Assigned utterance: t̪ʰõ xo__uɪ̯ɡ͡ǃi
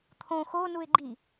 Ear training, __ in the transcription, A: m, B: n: B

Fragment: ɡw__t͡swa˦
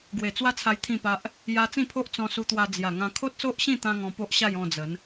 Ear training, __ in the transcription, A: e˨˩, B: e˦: A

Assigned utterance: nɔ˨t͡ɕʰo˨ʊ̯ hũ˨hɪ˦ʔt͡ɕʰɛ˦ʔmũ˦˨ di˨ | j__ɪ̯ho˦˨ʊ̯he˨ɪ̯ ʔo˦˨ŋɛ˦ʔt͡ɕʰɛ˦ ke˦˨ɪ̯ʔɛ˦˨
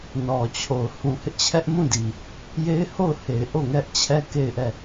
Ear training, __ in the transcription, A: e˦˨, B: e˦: B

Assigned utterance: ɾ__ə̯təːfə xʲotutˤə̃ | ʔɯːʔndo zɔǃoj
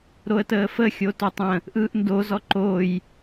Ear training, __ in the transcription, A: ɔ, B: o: B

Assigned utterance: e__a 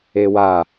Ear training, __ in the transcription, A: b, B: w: B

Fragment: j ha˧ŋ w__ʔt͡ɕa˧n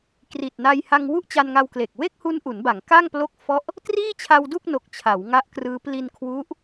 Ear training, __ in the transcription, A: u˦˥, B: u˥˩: B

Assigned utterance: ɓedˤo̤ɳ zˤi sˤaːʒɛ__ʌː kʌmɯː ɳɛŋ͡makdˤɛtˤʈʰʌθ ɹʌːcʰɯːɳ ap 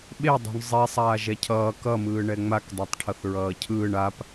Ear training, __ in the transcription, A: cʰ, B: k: A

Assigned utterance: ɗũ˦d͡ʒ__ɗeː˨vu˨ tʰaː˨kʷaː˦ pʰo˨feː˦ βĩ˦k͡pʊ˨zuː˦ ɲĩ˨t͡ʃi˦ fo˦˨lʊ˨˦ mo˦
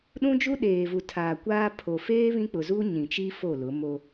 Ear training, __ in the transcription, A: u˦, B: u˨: A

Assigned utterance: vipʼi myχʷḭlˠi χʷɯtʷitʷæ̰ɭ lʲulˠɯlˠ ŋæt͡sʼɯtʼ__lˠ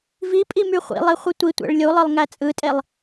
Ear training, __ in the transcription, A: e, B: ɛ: A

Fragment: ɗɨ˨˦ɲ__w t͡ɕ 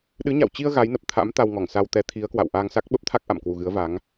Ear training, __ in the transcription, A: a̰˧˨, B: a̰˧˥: A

